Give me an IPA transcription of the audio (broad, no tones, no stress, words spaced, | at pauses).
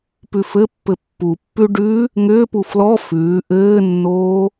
pʉfɘpːɘ pːupːʉ ɖʉ | ŋʏːpu flɔ fʉː ʔɘːnːoː